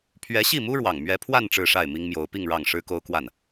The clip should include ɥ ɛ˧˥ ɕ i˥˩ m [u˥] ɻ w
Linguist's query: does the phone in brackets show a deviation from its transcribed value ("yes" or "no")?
no